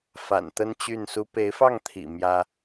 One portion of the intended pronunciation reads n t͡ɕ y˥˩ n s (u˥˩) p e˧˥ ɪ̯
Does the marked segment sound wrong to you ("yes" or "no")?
yes